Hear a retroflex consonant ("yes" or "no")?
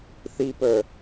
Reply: no